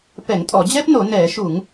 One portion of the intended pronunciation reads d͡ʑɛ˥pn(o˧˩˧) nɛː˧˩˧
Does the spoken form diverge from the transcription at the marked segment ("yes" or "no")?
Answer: no